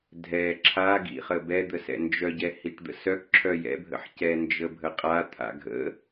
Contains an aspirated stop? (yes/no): yes